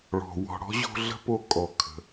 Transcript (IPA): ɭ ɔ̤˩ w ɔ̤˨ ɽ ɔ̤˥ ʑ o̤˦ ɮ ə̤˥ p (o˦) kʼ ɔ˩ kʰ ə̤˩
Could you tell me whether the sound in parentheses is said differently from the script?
no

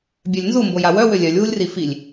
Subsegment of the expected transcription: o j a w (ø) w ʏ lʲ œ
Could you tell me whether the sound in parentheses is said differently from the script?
yes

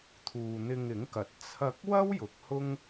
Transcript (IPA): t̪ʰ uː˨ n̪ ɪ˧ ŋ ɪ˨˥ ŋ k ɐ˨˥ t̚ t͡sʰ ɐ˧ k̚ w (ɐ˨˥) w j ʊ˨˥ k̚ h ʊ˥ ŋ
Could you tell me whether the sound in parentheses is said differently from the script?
yes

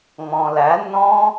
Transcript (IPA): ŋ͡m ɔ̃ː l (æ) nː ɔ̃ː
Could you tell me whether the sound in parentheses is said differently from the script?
no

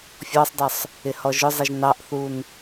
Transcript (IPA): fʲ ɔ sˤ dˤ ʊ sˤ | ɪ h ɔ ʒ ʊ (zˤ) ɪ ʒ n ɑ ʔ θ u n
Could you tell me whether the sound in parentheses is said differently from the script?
no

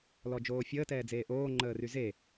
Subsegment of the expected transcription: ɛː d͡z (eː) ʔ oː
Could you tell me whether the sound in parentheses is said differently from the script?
no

